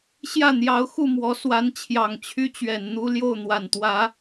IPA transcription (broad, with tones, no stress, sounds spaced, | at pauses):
ɕ j ä˥˩ n̪ j ɑ˧˥ ʊ̯ x u˥˩ m w ɔ˧˥ s w a˧˥ n t͡ɕʰ j ɑ˨˩ ŋ t͡ɕʰ y˥ t͡ɕ ɥ ɛ˨˩ n n̪ u˥ l j o˥˩ ʊ̯ n̪ w a˨˩ n t̪ w ä˧˥